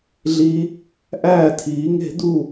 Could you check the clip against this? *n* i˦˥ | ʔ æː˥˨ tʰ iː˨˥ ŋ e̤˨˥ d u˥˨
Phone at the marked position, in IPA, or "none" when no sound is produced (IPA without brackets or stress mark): ɮ